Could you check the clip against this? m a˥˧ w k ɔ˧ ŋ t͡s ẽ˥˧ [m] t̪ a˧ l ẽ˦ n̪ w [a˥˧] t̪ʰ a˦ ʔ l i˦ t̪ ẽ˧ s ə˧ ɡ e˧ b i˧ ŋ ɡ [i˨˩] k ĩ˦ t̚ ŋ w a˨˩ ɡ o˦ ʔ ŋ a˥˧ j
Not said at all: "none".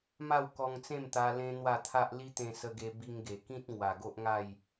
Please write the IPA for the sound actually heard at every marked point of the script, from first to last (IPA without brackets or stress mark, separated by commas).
m, a˥˧, e˨˩